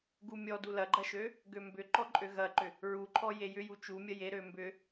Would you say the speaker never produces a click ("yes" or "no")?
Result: no